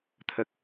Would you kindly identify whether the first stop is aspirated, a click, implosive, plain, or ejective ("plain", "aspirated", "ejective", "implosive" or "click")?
aspirated